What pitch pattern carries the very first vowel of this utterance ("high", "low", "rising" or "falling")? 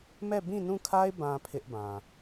falling